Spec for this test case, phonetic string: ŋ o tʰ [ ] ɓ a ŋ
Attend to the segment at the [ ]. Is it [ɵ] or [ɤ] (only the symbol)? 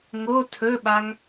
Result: ɵ